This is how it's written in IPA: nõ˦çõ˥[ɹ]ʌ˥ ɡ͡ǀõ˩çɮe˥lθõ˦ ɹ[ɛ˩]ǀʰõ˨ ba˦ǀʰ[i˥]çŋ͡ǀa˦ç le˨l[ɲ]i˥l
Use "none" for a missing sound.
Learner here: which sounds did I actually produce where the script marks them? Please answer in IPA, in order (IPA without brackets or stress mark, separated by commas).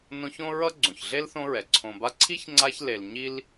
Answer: ɹ, ɛ˩, i˥, ɲ